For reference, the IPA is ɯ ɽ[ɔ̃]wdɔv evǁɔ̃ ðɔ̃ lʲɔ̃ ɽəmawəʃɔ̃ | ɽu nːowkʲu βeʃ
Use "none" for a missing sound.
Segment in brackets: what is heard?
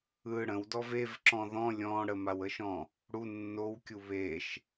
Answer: ə̃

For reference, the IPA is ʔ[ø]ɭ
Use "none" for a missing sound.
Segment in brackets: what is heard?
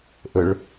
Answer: ə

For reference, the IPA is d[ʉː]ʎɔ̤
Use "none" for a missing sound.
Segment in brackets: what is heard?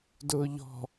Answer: ʊː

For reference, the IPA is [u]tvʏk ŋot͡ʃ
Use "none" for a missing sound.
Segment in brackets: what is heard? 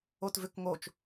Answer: o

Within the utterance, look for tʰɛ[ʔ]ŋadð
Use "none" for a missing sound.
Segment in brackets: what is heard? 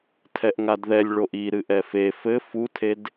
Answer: ʔ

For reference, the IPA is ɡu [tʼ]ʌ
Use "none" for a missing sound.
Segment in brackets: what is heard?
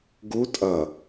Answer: tʼ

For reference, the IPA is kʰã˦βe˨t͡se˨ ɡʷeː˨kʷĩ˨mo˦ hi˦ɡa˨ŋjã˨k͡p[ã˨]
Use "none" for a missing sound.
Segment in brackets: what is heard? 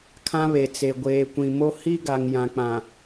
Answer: ã˨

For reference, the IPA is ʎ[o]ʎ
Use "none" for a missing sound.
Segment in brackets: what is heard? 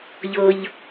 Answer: ɤ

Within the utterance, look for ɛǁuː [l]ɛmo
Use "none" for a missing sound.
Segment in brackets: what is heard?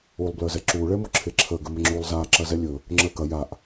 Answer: ɭ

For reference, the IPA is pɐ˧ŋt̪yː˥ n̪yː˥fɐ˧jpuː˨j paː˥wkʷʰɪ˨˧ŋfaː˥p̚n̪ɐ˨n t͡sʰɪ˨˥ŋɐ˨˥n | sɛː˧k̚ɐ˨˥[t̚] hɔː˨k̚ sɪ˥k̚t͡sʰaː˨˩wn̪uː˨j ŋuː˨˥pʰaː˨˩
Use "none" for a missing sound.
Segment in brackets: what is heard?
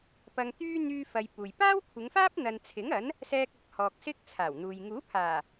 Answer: k̚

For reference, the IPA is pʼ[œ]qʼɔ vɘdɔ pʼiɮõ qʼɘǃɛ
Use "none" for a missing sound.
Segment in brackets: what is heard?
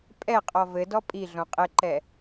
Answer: ɛ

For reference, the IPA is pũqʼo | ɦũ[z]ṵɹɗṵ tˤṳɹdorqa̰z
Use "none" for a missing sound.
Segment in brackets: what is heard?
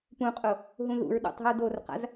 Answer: ð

